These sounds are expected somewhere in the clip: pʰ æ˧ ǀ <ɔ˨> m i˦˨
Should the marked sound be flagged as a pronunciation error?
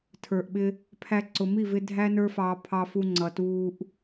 yes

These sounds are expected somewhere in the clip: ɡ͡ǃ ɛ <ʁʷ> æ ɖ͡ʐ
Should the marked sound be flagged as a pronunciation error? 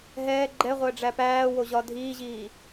no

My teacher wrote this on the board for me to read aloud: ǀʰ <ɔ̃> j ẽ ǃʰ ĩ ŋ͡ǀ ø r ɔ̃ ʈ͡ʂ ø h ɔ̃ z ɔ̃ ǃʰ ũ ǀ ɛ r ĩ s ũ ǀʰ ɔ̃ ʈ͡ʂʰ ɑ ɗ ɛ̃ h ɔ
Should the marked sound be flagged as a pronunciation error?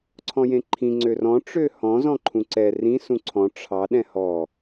no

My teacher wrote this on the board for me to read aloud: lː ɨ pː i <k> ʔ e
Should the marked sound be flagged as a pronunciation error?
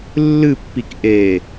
no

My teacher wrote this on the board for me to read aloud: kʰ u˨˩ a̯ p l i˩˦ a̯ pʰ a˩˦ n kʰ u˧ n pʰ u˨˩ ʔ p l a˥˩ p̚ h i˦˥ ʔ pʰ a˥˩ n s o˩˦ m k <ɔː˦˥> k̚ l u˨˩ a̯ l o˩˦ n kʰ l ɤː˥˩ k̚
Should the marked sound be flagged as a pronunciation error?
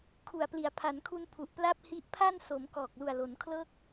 yes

